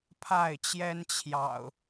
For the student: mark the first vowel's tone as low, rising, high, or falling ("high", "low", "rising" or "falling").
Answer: falling